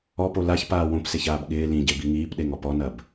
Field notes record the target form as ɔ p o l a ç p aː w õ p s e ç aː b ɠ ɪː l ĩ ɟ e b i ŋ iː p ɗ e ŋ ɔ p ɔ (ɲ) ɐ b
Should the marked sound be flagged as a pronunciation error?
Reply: yes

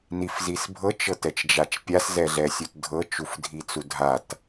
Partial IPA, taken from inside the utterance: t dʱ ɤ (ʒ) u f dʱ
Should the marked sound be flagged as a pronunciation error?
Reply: yes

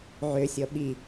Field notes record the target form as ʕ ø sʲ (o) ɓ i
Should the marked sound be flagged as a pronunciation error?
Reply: yes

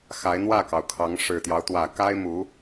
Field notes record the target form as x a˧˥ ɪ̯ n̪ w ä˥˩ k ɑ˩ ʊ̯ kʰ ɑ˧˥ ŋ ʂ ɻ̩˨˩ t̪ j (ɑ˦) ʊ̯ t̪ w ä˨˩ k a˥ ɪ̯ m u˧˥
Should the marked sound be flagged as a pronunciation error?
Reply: no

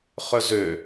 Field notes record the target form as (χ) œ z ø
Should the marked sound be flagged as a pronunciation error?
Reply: no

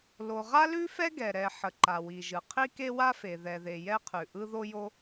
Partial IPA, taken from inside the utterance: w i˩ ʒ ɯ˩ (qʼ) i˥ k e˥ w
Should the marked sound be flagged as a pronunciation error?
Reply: yes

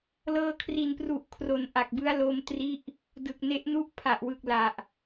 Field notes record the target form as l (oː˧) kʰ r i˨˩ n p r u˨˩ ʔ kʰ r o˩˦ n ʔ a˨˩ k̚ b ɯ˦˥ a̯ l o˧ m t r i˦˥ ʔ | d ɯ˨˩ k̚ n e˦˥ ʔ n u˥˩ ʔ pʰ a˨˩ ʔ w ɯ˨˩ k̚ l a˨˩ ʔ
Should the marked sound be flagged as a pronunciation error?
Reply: yes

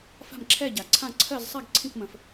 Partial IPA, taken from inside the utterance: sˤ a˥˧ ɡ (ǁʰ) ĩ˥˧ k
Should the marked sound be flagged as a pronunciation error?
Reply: yes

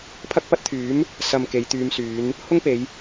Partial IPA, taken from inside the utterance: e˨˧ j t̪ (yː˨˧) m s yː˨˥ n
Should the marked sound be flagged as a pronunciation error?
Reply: yes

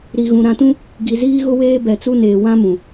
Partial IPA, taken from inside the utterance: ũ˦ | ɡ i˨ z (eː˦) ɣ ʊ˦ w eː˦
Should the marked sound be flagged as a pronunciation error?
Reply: yes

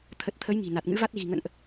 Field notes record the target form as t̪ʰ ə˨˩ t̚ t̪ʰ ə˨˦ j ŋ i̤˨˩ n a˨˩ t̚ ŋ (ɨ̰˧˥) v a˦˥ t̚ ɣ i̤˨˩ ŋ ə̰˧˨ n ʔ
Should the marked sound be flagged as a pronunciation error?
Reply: no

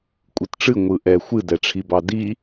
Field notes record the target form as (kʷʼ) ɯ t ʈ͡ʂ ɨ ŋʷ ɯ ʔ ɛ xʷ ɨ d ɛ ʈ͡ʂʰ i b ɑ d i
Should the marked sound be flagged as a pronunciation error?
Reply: no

